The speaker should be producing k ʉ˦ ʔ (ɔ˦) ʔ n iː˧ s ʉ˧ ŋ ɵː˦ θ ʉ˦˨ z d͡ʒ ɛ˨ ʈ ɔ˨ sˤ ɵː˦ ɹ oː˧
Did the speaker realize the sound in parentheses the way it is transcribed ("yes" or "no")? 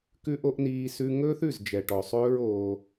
no